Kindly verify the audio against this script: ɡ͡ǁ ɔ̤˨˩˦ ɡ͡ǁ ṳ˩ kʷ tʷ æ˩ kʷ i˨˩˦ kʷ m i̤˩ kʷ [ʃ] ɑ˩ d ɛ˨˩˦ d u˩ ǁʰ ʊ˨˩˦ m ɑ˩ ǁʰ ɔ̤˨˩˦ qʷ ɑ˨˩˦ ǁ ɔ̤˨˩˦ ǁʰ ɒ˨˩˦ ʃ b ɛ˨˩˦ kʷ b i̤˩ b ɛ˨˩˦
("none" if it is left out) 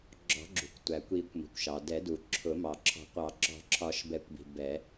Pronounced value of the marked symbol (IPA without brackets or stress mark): ʃ